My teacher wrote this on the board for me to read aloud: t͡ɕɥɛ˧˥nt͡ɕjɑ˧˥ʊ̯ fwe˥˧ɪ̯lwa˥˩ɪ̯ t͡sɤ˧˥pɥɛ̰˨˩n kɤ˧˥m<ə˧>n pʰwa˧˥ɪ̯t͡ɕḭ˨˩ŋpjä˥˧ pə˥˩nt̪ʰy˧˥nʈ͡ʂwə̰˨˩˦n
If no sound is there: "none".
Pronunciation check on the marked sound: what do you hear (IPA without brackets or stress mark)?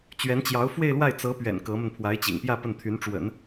ə˧